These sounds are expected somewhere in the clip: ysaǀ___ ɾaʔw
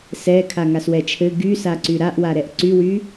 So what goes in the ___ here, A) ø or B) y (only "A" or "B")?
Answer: B